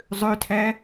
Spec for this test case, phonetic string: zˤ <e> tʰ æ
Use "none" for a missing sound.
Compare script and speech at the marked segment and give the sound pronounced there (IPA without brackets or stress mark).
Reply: ø